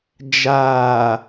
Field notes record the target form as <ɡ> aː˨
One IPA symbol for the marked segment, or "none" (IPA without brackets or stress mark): d͡ʒ